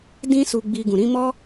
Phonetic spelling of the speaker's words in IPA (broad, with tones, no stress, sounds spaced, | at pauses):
d ĩ˦ s u˧ ɡ͡b i˧ ɡ ũ˨ ɾ ĩ˨˦ m ɔ˦